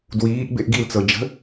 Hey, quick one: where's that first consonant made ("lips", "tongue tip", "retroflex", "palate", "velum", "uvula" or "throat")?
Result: tongue tip